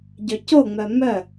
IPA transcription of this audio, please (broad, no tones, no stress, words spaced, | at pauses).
ɟøcoŋ͡mœ mœ